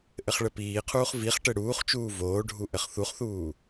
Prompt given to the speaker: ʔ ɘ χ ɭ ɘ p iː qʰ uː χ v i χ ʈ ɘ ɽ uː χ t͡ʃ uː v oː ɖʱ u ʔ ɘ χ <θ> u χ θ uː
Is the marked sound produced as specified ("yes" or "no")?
yes